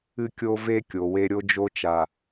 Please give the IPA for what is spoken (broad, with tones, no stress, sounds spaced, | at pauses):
ɨ˦ kʲ o˦ v e˦ kʲ o˨ w e˦ ɾʲ o˦ d͡ʒ o˦ t͡ʃ a˨